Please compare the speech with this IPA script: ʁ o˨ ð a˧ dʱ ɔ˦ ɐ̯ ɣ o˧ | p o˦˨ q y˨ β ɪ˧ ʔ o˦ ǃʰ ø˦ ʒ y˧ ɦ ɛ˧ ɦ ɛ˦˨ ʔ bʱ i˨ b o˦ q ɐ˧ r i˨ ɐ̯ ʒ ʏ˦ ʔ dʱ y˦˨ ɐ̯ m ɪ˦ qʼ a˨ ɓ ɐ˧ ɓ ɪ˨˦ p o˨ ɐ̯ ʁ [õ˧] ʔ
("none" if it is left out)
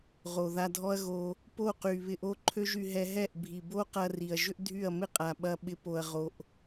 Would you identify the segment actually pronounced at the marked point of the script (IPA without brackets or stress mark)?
o˧